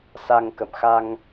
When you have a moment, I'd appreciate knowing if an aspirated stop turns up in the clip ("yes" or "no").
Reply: no